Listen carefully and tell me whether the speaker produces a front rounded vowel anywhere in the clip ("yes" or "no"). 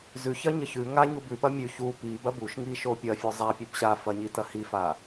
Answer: no